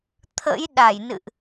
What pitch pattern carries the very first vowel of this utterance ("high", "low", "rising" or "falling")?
rising